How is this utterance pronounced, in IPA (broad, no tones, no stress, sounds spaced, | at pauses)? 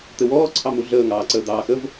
t̪ ɘ w ɔː ǀʰ ɑ m u ɮ əː ŋ ɑː ǀ əː d̪ ɑː x ə v